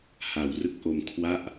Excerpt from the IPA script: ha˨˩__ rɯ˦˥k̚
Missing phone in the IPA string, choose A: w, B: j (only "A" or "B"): A